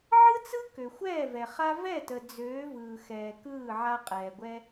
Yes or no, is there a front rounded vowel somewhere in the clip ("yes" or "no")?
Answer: yes